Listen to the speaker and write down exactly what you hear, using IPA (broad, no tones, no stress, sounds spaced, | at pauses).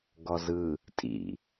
ɡ ɔ z ɯ | tʼ ḭ